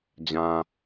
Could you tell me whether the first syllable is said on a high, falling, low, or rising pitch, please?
low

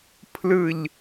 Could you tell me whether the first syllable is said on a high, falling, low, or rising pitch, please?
falling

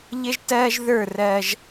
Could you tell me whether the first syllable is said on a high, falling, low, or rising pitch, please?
high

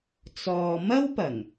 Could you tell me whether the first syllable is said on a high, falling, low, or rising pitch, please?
low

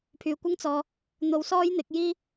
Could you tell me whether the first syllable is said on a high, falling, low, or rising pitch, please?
low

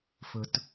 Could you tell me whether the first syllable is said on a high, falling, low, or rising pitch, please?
low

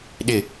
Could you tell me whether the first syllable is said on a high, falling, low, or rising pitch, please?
falling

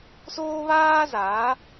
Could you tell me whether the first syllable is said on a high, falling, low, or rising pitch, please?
high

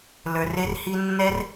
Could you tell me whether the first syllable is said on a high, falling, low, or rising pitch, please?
low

